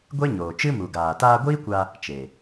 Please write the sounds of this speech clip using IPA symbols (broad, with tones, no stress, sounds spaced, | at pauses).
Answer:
ɡʷ e˦ ɲ oː˨ t͡ʃ ɨ˦ m u˨ ɡ aː˨ t aː˧ ɡʷ iː˦ kʷ a˧ | t͡ʃ e˨